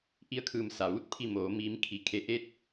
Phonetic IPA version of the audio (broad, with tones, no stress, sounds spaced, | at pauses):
ʔ i˧ ə̯ kʰ ɯː˧˩ m s a˩ ʋ uː˧˥ t̚ pʰ i˧˩ m oː˩˧ m iː˩˧ m kʰ i˩ kʰ e˩˧ ʔ eː˧˥ t̚